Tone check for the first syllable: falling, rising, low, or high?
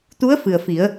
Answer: rising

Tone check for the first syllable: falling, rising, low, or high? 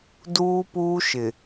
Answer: high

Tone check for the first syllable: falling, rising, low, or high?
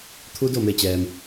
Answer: rising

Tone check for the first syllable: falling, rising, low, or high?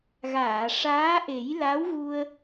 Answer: low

